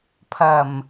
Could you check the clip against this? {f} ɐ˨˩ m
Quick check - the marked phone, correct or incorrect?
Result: incorrect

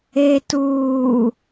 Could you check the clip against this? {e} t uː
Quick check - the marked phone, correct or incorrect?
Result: correct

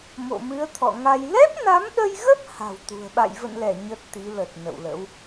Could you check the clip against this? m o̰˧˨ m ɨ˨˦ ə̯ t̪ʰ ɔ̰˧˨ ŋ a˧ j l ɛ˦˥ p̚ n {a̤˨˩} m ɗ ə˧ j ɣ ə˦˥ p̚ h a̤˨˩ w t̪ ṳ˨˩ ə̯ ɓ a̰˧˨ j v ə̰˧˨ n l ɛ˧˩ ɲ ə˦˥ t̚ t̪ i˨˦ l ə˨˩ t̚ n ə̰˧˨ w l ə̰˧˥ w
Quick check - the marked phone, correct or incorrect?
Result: incorrect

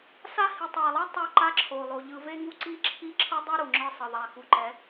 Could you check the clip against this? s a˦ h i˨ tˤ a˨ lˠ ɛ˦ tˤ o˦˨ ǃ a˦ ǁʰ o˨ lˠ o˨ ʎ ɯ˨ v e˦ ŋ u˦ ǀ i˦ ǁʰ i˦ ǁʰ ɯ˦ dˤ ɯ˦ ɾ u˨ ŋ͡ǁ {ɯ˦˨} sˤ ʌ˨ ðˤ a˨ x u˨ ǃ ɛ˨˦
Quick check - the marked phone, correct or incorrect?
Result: correct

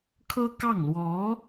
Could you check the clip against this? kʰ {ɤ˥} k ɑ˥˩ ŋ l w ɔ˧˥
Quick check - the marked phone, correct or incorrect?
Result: correct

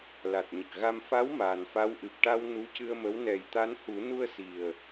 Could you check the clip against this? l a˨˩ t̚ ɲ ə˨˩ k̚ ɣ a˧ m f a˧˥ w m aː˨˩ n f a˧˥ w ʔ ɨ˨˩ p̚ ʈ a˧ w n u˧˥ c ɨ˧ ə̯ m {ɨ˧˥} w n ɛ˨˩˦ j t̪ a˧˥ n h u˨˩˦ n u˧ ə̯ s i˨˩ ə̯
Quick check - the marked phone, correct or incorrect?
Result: incorrect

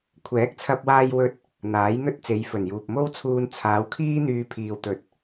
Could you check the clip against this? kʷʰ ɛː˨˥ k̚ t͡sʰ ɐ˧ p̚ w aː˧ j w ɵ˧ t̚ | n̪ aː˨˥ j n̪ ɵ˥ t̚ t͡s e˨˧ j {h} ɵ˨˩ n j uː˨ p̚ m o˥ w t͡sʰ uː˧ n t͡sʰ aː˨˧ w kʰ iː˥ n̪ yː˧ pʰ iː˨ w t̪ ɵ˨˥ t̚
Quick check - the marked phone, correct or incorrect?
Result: incorrect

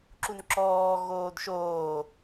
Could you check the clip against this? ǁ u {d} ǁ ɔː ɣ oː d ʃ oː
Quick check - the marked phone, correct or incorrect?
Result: incorrect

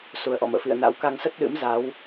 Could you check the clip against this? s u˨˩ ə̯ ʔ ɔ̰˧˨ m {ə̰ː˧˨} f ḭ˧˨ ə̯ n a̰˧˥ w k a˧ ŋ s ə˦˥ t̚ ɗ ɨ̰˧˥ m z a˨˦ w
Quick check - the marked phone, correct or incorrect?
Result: correct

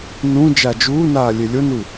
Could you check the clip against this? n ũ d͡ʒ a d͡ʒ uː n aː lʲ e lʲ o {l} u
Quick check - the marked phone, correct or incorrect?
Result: incorrect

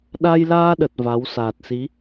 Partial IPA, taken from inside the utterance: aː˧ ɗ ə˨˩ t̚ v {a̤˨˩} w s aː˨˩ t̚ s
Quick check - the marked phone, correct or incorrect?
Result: incorrect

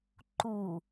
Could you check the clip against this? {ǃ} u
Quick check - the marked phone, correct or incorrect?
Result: correct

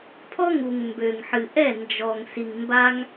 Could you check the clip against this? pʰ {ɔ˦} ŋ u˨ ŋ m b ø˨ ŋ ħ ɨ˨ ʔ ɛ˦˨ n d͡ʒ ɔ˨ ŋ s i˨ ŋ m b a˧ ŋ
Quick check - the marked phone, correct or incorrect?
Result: correct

